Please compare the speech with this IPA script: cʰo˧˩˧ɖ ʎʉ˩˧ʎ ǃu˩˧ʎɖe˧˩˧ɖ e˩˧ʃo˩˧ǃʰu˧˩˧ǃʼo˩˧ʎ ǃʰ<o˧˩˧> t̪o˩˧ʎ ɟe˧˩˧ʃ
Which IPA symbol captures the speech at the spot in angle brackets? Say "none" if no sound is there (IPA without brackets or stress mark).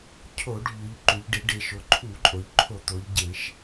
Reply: o˧˩˧